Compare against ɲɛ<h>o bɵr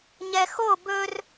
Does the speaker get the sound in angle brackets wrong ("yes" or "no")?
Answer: yes